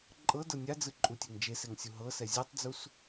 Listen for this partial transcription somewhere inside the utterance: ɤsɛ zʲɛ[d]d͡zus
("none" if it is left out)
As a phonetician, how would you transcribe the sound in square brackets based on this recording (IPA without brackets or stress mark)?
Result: tˤ